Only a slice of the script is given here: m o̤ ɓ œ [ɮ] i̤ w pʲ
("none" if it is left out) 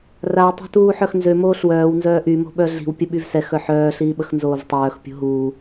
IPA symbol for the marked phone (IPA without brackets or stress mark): ɮ